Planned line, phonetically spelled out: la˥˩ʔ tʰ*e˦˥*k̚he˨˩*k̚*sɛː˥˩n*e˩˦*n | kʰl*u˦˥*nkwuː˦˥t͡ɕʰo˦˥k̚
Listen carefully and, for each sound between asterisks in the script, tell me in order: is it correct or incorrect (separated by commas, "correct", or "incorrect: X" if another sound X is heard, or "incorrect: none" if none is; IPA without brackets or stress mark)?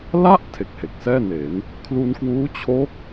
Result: incorrect: e˨˩, correct, correct, incorrect: u˧